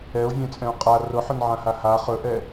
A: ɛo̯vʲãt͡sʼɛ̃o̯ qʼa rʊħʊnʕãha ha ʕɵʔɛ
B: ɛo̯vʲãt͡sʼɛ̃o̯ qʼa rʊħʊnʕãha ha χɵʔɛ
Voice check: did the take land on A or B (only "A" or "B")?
B